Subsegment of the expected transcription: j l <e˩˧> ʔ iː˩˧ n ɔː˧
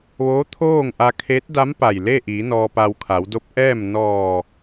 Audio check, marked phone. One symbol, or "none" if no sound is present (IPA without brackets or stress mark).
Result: e˥˨